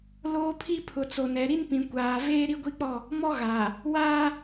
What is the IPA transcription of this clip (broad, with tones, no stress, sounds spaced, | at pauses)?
l oː˦ pʰ i˦ pʰ ʊ˨ t͡s o˨ n ɛ˨ ɾ i˦ n p ĩ˨ kʷ aː˨ v eː˦ ɾ i˦ ɡʷ i˦ k͡p ɔ˦˨ | m ɔ˦ ɣ aː˨ | w aː˦